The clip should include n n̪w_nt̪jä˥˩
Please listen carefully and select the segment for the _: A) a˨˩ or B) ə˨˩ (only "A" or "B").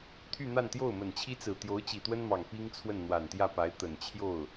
A